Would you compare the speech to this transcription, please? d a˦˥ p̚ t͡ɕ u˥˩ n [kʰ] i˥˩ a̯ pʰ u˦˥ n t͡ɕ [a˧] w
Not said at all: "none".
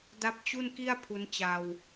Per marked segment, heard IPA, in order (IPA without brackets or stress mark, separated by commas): k, a˧